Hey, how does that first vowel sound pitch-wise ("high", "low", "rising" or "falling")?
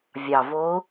low